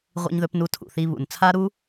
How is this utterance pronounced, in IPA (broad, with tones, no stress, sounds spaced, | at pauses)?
ʁʷ ḭ˧ ɲ ð ɵ˧ p n u˧ tʰ ṵ˩ θ i˧ β ṵ˩ n t͡sʰ a˥ ɾ u˥